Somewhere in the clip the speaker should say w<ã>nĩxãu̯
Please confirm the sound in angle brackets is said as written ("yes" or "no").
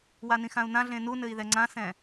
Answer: no